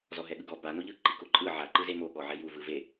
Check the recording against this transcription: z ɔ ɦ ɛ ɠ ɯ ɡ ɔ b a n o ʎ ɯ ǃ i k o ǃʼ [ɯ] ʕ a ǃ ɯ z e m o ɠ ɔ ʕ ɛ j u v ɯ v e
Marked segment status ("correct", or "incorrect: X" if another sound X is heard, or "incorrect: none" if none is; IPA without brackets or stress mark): correct